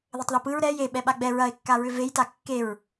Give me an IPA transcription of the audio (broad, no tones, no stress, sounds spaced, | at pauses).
ð ɘ tˤ ð ɯ p ɯ ɹ ɾ ɛ j e ɓ ɛ ɓ a ɡ͡b ɛ ɹ ɐ e̯ kː a ɹ ʏ v e j t a kː e ɹ